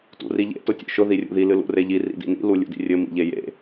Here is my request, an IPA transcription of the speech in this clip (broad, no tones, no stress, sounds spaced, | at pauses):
t ṵ r i ʎ ḛ t ʊ tʲ ṵ ʃ ʊ ð i rʲ ṵ ð i l ɨ l ṵ r e ʎ i r ḭ d ḭ n ḭ l u lʲ ṵ d ḭ rʲ ɘ m ḭ ʎ e j ḛ